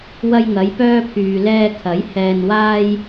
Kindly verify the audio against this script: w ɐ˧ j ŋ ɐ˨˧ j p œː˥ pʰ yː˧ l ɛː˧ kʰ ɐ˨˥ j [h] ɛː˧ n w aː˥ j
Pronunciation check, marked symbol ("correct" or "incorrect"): correct